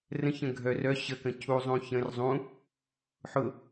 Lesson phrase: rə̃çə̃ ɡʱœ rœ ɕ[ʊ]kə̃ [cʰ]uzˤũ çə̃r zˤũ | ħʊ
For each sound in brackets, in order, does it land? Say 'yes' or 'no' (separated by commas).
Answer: no, yes